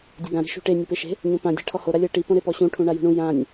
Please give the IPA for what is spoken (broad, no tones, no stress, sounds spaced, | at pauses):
dʲ ɤ ɡ ã ɾ i̤ ʃ ṳ ʈ e nʲ e p e ʃ e̤ | ɲ õ p ã dʲ ɛ̤ ʈʰ ɔ h o ɾ a lʲ ɤ ʈ i p õ ɾ e p ɔ ɕ ũ ʈʰ ũ ɳ a j ṳ ɳ ũ j ã nʲ